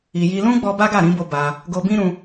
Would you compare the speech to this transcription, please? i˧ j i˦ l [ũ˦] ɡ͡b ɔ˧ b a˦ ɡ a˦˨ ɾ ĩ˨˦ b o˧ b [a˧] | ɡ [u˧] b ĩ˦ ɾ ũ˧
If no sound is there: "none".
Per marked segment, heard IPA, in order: ũ˦, a˧, o˧

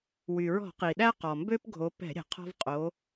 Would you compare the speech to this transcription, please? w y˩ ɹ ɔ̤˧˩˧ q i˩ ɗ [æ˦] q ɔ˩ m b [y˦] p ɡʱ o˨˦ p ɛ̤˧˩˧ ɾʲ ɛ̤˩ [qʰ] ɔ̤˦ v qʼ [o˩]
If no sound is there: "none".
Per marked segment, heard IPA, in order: æ˦, ø˦, qʰ, o˨˦

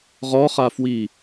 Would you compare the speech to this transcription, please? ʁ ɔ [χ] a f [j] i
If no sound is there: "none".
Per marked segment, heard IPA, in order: χ, w

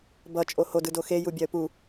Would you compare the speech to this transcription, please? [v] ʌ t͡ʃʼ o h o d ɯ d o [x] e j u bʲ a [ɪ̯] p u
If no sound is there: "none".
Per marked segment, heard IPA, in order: b, x, ə̯

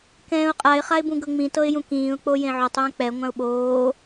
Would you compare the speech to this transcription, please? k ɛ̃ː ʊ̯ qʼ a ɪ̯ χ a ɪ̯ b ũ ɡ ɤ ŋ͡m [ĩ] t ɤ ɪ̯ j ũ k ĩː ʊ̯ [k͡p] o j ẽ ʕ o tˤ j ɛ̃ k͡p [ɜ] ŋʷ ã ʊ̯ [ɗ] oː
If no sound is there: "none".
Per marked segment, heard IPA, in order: ĩ, k͡p, ɛ, ɓ

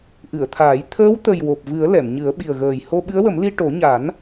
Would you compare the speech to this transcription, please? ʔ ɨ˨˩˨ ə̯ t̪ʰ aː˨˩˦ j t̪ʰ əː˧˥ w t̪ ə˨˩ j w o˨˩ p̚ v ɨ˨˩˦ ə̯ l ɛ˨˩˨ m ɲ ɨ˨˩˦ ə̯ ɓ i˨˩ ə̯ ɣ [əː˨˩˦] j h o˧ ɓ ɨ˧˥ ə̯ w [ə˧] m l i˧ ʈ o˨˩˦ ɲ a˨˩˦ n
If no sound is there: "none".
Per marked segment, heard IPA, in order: əː˨˩, ə˨˩˦

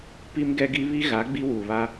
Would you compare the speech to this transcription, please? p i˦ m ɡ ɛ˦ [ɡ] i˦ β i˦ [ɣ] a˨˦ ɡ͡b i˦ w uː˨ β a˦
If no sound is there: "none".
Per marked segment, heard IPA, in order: ɡ, ɣ

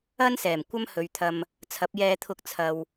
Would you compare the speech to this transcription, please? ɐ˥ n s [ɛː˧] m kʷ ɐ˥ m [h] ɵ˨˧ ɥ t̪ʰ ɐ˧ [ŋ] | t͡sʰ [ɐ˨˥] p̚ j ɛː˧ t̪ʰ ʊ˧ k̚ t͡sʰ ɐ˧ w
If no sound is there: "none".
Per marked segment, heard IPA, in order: ɛː˨˩, h, m, ɐ˨˥

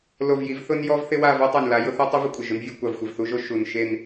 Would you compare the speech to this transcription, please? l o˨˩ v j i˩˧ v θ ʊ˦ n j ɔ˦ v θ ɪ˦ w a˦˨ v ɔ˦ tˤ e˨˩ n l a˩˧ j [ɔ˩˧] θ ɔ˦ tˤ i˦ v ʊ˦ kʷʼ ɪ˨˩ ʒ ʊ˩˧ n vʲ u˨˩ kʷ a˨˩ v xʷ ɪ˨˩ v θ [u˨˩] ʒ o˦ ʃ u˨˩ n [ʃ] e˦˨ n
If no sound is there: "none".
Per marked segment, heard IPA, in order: ʊ˩˧, u˦, ʃ

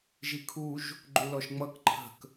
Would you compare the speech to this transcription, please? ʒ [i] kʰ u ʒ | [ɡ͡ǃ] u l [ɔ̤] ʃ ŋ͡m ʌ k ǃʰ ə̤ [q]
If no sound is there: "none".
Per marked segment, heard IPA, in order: i, ɡ͡ǃ, ɔ, k

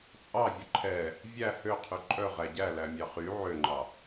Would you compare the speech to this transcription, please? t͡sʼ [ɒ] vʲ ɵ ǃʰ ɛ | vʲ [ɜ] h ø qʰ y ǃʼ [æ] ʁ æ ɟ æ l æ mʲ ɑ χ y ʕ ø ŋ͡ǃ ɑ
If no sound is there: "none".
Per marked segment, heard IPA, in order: ɑ, æ, œ

